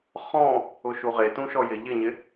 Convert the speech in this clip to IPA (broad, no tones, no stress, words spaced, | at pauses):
χɔ̃ | ʊʃuʁe tũʃɔjɪ ʎɪɲɪ